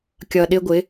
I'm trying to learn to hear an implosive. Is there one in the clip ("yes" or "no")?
yes